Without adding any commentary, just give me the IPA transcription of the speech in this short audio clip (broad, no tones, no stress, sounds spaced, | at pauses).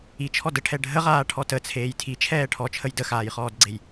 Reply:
i t͡ʃʰ ɔ d ə ʈʰ ɛ ɖʱ ə ʁ aː ʈʰ ɔ t ə t͡sʰ eː j tʰ i t͡ʃʰ ɛː ʈʰ ɔ t͡ʃʰ ə j d ə x aː j χ ɔː d ɡ͡ǀ e j